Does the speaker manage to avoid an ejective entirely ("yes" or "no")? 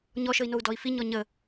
yes